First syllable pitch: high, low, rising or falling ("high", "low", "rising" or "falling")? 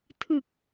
low